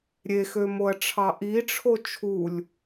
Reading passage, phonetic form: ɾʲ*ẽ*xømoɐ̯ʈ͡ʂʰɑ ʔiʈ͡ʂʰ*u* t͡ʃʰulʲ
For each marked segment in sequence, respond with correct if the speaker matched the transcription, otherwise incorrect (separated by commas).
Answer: incorrect, incorrect